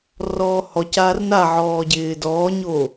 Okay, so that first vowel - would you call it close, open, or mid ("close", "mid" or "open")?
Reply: mid